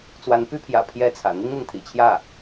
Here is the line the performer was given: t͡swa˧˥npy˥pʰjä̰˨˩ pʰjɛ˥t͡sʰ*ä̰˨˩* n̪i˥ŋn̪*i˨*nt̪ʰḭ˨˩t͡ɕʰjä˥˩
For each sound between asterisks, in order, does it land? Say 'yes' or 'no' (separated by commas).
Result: yes, yes